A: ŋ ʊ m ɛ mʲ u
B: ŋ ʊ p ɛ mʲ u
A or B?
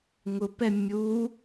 B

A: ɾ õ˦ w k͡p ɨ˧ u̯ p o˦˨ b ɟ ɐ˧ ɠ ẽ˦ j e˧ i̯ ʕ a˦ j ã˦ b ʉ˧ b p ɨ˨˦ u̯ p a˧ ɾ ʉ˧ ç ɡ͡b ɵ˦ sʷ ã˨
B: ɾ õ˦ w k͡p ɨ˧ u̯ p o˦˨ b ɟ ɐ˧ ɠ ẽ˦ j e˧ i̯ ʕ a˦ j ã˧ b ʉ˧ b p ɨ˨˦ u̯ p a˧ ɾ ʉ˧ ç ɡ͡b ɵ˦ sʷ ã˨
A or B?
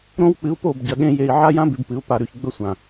A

